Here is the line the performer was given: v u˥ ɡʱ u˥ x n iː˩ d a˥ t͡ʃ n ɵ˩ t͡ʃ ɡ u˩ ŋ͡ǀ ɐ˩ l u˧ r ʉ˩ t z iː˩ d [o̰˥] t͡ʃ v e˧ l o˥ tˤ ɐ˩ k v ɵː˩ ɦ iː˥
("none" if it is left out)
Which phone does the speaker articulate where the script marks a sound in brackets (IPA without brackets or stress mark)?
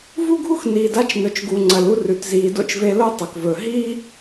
o̰˥